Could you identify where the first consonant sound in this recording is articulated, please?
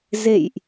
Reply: alveolar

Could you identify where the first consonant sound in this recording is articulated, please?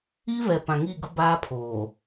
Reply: labial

